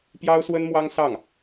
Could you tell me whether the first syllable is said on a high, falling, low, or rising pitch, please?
high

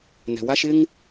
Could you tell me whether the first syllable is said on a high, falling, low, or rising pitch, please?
low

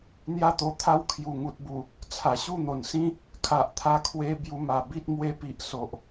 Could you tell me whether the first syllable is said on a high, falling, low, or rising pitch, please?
high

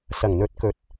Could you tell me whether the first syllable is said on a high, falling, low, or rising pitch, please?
low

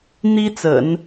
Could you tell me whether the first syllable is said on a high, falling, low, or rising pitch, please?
high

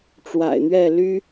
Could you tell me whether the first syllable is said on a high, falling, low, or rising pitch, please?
low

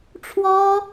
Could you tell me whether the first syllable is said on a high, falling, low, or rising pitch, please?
high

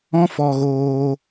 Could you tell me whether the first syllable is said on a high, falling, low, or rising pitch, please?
high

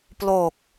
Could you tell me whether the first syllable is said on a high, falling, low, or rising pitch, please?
low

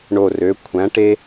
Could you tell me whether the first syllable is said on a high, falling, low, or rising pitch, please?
low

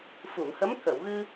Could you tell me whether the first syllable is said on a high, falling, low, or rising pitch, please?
low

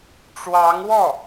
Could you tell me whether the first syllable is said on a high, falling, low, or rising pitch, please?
rising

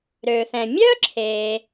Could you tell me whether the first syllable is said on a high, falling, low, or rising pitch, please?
low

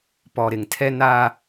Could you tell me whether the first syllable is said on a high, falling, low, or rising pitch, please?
low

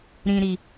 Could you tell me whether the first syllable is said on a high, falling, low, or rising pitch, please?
low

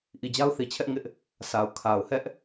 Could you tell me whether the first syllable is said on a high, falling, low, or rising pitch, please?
low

